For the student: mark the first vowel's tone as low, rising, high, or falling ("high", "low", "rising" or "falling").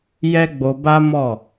high